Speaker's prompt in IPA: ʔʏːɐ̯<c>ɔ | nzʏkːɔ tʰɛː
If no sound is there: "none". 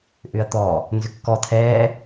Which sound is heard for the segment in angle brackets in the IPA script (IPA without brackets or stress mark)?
t̪